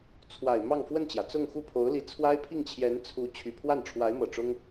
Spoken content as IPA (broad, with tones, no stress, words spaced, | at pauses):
t͡sʰwa˨˩ɪ̯ mɑ˥˧ŋfwə˥˩nt͡ɕjä˩ t͡sʊ˥˧ŋxu˥˩pʰo˧˥ʊ̯ li˧˥ t͡sʰwa˥ɪ̯pʰi˥˩ŋt͡ɕʰjɛ˧˥n t͡sʰu˧˥ t͡ɕʰy˨˩pʰwa˥˩n ʈ͡ʂʰwa˧˥ɪ̯mɤ˨˩ʈ͡ʂʊ˥ŋ